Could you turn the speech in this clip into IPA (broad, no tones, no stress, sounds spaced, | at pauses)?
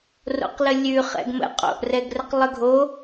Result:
r o̰ q l ə lʲ ʉ χ ɛ̰ ɡ m ə̰ qʼ o̰ ʔ r ɛ ɡ r ə q lˠ ə ɡʱ o